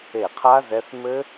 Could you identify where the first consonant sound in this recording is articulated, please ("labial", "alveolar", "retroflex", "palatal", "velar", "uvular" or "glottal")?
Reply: uvular